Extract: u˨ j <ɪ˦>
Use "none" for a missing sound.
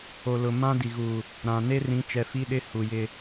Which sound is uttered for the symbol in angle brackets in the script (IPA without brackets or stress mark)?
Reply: ɪ˦